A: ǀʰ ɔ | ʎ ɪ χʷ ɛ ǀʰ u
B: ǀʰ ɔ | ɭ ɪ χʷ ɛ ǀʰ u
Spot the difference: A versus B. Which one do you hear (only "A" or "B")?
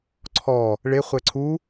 B